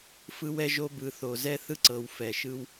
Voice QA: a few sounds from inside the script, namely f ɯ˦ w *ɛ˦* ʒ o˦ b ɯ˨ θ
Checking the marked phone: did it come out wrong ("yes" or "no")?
no